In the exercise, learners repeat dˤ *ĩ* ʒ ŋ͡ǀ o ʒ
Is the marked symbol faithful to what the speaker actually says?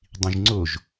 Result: yes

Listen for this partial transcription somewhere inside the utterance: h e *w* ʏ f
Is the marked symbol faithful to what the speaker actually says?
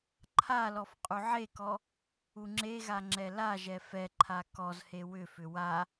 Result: yes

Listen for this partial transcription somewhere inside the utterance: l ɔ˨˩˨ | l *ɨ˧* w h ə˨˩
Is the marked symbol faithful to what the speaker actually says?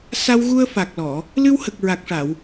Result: yes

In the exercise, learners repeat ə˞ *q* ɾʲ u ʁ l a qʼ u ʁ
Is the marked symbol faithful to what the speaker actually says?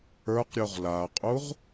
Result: yes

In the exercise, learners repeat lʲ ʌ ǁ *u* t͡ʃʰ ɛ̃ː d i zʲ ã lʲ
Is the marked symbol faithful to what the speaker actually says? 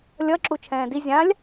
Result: yes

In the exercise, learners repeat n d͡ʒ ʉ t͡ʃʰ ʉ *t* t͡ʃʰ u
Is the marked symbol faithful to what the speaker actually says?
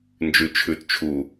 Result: yes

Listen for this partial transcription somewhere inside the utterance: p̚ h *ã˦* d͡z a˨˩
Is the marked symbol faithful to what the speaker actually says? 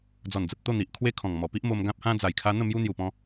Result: yes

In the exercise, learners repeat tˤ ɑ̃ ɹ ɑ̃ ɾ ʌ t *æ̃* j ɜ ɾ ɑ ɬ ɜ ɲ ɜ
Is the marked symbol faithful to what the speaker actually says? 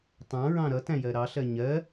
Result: yes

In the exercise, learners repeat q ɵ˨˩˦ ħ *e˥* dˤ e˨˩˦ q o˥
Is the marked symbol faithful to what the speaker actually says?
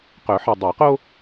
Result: no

